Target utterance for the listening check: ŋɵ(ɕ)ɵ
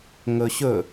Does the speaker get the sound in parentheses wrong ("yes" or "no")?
no